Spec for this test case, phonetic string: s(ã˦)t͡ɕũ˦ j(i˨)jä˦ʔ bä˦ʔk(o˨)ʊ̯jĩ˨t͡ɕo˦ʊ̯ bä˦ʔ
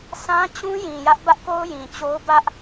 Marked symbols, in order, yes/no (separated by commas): yes, no, no